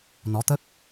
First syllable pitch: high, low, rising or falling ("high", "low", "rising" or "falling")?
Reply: rising